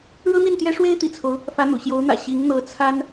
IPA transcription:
ɻɤ˥n̪i˥˩nt̪jɛ˥ ʂwe˥ɪ̯t̪ḭ˨˩t͡sʰo˦ʊ̯ | fä˧˥n̪ṵ˨˩ɕjo˧˥ʊ̯n̪ä̰˨˩ ɕi˧˥ŋ n̪ɤ˧˥t͡sʰa˥n

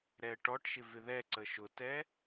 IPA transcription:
ɾɛə̯ʈɔʈʃɪ vɪðɛǀə ʃʊtɛ

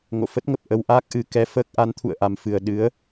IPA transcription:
ŋo̰˧˨fə˦˥t̚ŋə˨˩p̚ ʔə˧wʔaː˦˥k̚ʔɨ˨˩kɛ˧ fəː˦˥k̚ ʔa˨˦nt̪ʰṵ˧˨ə̯ʔa˨˩mfɨ˨˩ə̯ ɗɨ˨˦ə̯

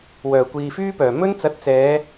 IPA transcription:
wœː˨˩kʷiː˨fyː˥pœː˨˩ mɵ˥nt͡sɐ˨˥t̚t͡sɛː˨˧

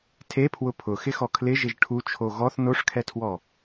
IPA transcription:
tʰepʰwʊ pʰʊxɪxɔ kʰlɪʒɪʒ ʈʰut͡ʃʰo ɣɔθ noʂkʰɛtʰwɔ

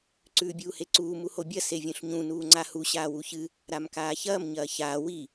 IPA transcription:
ǀʉːbʲuːheǀuː muhobʲɐ sevʲũɬɲũ nuːŋ͡ǀahu ɕaːwuçɨ | ɾamkaːçɐːm ɲɐːçaː wi

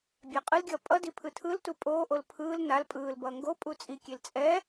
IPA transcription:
bʲaqʼɯlɡʲʌː pʼʌdi pʰɯtʰɯltu pʼoːʔol pʰɯːl nal pʼɯːlbʌː ŋɡo pʼut͡sʼikʲel t͡sʼɛ

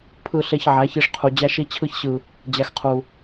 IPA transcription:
pʰɯ˧ɬe˧çʕæ˨˦çi˧ʂ qʰu˨d͡ʑæ˦ʃi˦ t͡ɕʰɯ˧çɕɯ˨ | d͡ʑæ˨x qʰu˨

